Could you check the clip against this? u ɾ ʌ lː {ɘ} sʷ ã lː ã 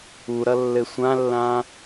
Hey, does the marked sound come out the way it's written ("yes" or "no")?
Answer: yes